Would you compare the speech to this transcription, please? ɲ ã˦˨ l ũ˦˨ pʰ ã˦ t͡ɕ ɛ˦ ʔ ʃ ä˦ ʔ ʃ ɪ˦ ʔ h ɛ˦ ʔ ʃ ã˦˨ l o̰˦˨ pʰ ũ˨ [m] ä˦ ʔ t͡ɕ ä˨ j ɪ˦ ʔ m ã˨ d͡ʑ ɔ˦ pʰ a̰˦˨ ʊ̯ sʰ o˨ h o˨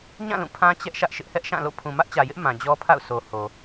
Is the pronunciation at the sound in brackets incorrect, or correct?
correct